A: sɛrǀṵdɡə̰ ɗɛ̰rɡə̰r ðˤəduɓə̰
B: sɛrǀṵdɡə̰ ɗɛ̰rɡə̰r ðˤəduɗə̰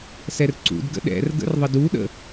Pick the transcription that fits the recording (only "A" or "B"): B